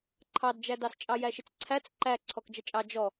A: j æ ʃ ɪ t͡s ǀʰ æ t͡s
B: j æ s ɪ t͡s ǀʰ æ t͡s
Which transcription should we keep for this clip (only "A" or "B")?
A